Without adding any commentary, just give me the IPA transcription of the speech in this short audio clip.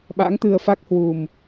ɓa̰˧˥ŋt̪ɨ˧ə̯ fa˦˥k̚hwu˨˩m

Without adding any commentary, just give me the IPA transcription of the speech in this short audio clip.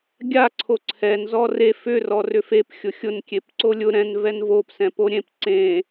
ɡʲa ǀʰoǀʰɛn zɔre fʏ rɔrʏfep xʲʊxʲʊn kʲepǀolʲʊ ɾɛ̃n vɛnvop sɛ̃poɾʲẽp ǀẽ

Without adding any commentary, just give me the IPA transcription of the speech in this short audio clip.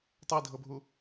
tˤɤi̯dʱɤbʱu

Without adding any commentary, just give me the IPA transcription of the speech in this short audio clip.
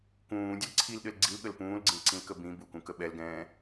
kũːdʲəl ǀʰilɗɘl ɡ͡ǀilɠəl pũːlɡ͡ǀĩlǀĩlkə bĩ bukũkə ɓɛlɡɛ̃ː

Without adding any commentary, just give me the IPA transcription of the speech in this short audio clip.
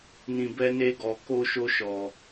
nĩ˧bɛ˦ne˦ɡɔ˧ ko˦ʃo˦ʃɔ˧

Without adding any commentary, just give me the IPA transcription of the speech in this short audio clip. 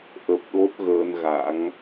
ʔə˨˩p̚ ɗo˦˥t̚ɣəː˧nɣa̰˧˥ŋ

